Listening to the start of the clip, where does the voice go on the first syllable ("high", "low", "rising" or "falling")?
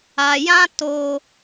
low